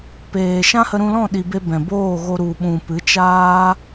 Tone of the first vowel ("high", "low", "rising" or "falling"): low